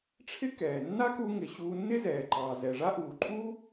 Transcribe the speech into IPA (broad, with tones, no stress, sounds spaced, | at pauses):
ʈ͡ʂʰ ɪ˥ k ɛː˩ nː a˥ k u˧ ŋ ɪ˩ ɕ uː˧ nː ɪ˥ z ɛː˩ ǃ ɑː˩ z ɛ˩ ʐ a˥ ʔ uː˩ ǃʼ uː˥